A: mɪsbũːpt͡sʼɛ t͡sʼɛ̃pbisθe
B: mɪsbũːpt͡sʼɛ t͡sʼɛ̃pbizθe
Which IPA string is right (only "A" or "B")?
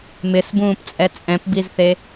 B